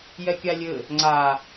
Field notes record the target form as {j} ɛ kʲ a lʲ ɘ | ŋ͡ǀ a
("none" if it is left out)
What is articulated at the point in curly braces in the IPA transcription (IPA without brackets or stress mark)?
j